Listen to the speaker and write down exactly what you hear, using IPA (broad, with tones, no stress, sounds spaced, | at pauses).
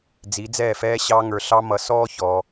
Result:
d͡z i˨˦ d͡z ɛː˦˨ f ɛː˦ ɕ ɑ˦ ŋ ə˞˧ ɬ ɑ˦ m ʌ˧ s ɔː˦ ç ɔ˧